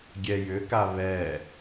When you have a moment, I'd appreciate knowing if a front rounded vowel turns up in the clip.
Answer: yes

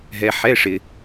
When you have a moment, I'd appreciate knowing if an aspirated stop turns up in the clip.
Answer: no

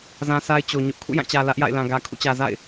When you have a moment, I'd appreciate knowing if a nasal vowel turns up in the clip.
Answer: yes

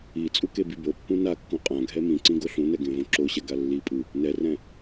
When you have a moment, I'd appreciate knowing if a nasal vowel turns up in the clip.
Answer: yes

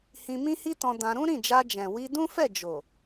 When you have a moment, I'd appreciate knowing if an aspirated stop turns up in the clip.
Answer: no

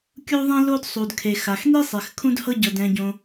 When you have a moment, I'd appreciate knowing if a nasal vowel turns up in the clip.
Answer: yes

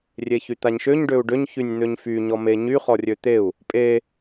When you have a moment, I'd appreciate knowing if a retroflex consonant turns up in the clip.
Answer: yes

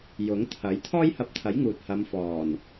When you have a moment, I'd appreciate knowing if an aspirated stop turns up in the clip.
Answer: yes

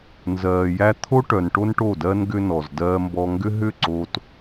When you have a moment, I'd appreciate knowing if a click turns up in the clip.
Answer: yes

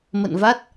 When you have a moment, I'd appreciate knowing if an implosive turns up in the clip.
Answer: no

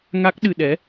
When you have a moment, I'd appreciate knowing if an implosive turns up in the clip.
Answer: yes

